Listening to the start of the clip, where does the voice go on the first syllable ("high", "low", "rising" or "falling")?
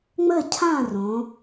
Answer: falling